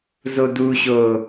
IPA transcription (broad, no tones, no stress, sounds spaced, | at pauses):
z o d u ɕ o